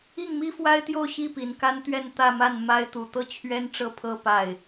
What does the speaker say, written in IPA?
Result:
i˥˩ŋmi˥fwa˥ɪ̯t̪jo˥˧ʊ̯ ɕi˥˩pi˨˩nka˥nt̪ɥɛ˥˧n t̪ä˥˧ma˥˩n ma˥ɪ̯t̪u˨˩ t̪ɤ˥˩ t͡ɕʰɥɛ˥nʈ͡ʂɤ˥˩ pʰɤ˥ pa˥˩ɪ̯

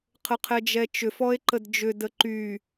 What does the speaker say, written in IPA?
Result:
qʰəqʰɛd͡ʒɛt͡ʃʏf ɔe̯ǃədd͡ʒʏ dəǃy

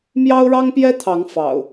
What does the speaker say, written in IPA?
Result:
mjɑ˦ʊ̯ɻɑ˦ŋpjɛ˦t̪ʰɑ˨˦ŋ fɑ̰˨˩ʊ̯

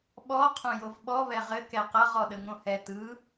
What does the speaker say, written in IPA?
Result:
ɓɔ qʰõjovɓɔ βɛʁɘ kɛqʌʁ ɔɗəŋõhɛ tɯ

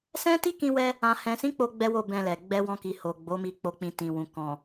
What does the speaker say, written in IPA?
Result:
sɛ̃˦ti˦ kĩ˧wɛ˧ | ã˨hɛ̃˨sĩ˨˦ k͡po˦ɡ͡bɛ˦wo˦˨ bɛ̃˧lɛ˨ ɡ͡bɛ˧wɔ̃˧ki˨ ho˨ ɡ͡bo˨˦mi˧ k͡po˨k͡pĩ˨ tĩ˨wũ˨ kɔ̃˨

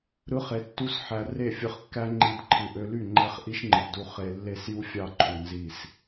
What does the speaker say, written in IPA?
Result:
ɾɯ˦χe˧tːu˦sħæ˧ re˦˨fʲɯ˧χkːæ˦ŋ͡ǃi˧d ǃʰɯ˨ʔø˧ly˦˨ ŋ͡ǃæ˦χʔi˦ʃŋ͡ǃɯ˨pdu˧ χe˨ lːe˦˨sju˦fʲɑ˦˨ ǃʰu˨nzi˦˨s

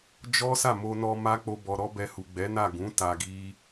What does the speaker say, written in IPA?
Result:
d͡ʒɔ˦sa˦˨mo˧nɔ˧ ma˦k͡po˧ bɔ˧ɾɔ˦bɛ˧hu˨ ɡ͡bɛ˨˦na˦˨ɡũ˨˦ ta˧ɡi˦

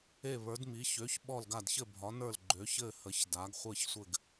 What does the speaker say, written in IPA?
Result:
e˥˨βə˞˨˥dmi˨˥ çø˨˥ç ɓɔ˥˨lɡa˥˨d çɘ˥˨bʱɒ˨˥nə˞˥˨l ɡ͡ǃø˨˥çɘ˥˨ hə˨˥çda˨˥ɡ χʷɘ˥˨çsʷɘ˥˨ɡ

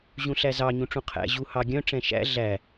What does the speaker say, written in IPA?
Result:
ʑũɬæzɑ ɲũʈ͡ʂũqʰæ̰ ʑu hɑɡʲœ̃ ʈ͡ʂɛ̃ʃæ̰ ɮæ

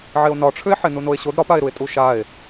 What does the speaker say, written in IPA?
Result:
ʕeo̯nɒʈ͡ʂʰʏe̯ħe nunoe̯ɕod ɾɒpae̯ɾue̯ tʼuʃae̯

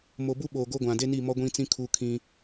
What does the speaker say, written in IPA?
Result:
mo˨bu˦ɓoː˨ ɡo˦ɡʷã˨ de˦ni˦˨mɔ˦ɡʷĩ˦ t͡sĩ˦ kʰu˦kʰĩ˦

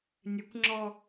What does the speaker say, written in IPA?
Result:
nʲɘkʷŋ͡ǁɔ

